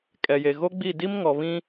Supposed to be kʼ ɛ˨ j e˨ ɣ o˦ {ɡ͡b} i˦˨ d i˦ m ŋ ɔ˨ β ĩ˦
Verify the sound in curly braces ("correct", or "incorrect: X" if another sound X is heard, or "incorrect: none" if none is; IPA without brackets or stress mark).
correct